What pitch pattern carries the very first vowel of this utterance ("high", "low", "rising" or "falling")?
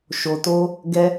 low